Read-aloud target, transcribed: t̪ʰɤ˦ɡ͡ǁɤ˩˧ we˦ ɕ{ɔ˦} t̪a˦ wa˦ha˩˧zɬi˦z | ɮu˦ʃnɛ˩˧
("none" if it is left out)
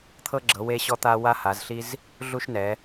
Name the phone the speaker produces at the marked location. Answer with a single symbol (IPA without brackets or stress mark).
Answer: ɔ˦